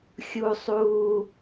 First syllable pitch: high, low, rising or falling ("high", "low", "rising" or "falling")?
low